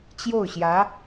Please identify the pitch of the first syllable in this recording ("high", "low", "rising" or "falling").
falling